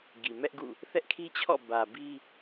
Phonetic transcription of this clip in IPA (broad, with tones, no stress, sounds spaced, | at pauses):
ɡ i˨ m ɛ˦ ʔ ɡ ṵ˦˨ | θ ɛ˦ ʔ kʰ i˦ t͡ɕʰ ɔ̰˦˨ b ä˨ b i˦